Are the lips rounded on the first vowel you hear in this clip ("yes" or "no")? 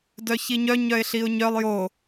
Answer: yes